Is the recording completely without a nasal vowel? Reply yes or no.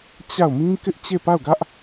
no